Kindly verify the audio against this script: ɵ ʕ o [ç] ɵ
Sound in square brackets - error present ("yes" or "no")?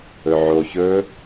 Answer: no